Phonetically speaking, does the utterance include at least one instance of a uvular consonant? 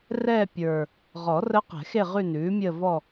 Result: yes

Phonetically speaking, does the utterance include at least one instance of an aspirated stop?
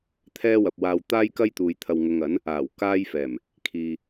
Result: yes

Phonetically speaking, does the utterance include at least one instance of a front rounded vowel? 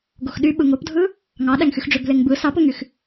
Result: yes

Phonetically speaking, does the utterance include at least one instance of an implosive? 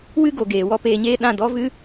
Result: yes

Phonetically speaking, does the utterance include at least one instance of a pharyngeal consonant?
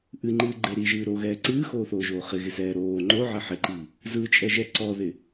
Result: yes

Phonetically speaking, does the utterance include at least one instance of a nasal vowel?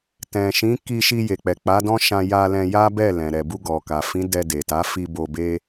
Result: yes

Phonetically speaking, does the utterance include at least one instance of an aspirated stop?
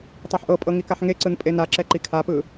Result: yes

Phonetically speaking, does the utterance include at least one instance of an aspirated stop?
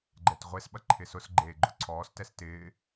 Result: yes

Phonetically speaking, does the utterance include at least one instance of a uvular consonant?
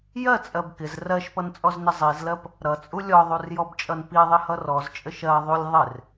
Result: no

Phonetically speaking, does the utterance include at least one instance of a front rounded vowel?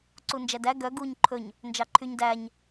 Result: yes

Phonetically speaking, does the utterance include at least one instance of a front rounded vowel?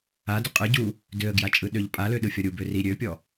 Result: yes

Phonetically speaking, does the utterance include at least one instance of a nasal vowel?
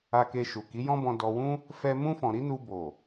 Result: yes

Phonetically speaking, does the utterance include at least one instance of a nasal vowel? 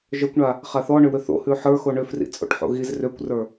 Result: no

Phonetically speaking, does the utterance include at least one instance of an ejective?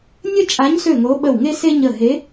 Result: yes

